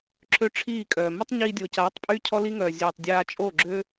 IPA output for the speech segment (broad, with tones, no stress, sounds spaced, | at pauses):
ǁʰ ø˦ ʈ͡ʂʰ iː˦˨ kʼ œː˨ m ə˦ tˤ ɲ iː˧ dʲ o˨ c aː˨˦ tˤ pʼ yː˦ cʰ ɔ˦ l i˦ ŋ œː˨ zʲ œː˨ tˤ dʲ aː˧ t͡ʃʼ o˦˨ ɡ͡ǁ ø˦